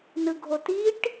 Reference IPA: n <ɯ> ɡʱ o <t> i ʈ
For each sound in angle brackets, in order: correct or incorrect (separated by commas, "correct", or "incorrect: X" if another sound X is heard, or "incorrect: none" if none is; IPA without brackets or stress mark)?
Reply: correct, correct